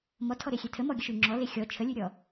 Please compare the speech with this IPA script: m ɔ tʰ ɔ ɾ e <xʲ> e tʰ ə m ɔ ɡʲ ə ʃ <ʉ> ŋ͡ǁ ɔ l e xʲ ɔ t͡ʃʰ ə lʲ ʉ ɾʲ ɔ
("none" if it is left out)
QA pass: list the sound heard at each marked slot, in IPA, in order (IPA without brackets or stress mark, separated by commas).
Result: xʲ, ʉ